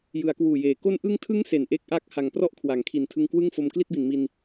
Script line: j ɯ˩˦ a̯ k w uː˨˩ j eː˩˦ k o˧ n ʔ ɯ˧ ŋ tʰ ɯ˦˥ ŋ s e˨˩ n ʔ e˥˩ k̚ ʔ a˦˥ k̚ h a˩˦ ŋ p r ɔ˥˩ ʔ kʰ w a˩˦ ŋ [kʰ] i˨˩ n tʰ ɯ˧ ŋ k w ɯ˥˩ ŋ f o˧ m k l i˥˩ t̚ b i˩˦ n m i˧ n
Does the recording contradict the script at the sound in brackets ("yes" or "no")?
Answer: no